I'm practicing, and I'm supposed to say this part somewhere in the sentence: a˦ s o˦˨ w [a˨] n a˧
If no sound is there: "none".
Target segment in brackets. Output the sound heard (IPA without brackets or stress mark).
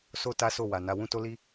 a˨